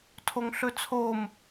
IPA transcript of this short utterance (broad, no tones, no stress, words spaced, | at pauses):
tʰoŋɬɵt͡sʰom